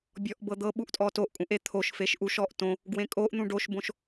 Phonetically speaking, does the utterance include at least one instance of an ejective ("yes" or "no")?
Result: yes